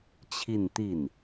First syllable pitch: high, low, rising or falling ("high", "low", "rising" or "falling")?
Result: falling